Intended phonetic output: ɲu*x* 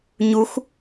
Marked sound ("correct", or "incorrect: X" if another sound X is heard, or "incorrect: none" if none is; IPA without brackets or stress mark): correct